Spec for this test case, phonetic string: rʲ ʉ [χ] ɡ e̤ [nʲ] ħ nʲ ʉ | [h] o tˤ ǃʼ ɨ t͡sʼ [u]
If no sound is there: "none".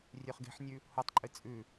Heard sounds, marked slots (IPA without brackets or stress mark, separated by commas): χ, none, h, ʉ